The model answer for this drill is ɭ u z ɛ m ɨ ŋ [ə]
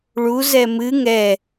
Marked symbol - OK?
no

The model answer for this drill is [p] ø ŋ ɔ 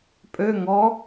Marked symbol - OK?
no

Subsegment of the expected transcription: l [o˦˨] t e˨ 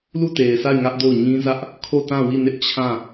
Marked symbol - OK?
no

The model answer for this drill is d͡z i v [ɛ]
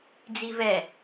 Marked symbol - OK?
yes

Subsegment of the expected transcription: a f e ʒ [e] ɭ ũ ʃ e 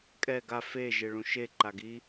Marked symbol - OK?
yes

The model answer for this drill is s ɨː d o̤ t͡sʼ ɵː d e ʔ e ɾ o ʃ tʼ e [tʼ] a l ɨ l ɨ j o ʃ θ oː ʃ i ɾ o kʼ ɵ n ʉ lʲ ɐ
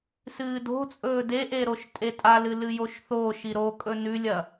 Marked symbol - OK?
yes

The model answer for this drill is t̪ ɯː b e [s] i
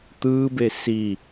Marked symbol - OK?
yes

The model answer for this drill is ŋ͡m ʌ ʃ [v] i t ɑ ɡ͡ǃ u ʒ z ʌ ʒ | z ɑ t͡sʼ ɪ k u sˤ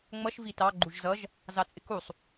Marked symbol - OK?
yes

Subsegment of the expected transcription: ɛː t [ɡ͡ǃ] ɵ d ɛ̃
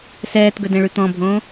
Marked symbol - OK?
no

